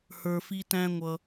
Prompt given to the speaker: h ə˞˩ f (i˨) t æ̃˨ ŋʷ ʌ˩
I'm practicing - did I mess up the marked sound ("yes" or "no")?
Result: no